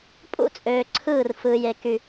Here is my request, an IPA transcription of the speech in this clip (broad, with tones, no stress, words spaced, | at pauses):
pʼṵ˦t͡sʼøː˨ǀʰɯː˦˨r fɯː˨je˨ ky˦